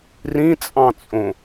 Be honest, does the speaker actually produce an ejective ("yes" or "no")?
yes